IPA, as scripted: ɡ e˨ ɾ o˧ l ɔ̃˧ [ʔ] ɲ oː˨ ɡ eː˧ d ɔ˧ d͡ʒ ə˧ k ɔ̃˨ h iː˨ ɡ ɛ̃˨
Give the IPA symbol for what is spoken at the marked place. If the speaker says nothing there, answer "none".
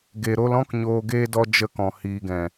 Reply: k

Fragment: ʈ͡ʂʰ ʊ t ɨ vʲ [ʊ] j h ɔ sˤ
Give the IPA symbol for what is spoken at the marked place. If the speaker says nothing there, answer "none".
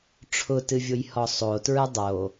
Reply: ʊ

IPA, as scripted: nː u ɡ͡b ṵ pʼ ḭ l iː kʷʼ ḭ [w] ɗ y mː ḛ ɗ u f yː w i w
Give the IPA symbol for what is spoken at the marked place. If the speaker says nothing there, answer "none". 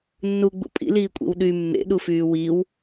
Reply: w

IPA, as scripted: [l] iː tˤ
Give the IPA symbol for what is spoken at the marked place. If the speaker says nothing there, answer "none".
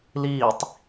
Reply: l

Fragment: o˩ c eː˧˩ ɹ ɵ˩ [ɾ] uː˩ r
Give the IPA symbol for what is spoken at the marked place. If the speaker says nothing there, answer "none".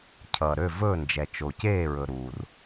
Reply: ɾ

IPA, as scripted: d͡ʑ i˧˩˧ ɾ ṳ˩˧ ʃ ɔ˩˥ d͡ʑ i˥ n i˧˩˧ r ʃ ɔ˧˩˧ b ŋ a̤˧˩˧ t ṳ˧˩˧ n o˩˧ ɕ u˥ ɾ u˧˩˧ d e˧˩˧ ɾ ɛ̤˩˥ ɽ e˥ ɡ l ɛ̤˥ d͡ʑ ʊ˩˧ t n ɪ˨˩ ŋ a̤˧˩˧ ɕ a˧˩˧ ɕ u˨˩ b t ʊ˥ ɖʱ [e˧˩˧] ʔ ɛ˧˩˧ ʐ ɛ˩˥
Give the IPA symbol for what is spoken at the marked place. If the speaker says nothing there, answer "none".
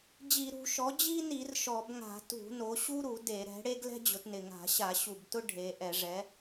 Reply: e˩˧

